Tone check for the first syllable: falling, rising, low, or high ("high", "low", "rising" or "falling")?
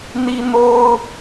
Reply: high